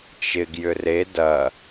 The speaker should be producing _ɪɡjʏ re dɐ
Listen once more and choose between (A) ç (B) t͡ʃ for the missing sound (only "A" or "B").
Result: B